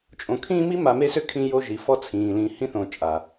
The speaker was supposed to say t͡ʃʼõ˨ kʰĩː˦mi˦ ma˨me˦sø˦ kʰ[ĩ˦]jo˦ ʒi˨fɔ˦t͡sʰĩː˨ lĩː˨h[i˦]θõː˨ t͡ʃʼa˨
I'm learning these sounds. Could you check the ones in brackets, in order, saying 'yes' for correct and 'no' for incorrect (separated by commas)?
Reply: yes, no